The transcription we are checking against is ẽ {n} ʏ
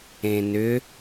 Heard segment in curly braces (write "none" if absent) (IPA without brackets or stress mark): n